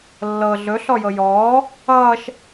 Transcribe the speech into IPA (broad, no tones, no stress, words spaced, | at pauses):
lːɤ ɮɵ ɬɔjɤjɔː | ʌːʃ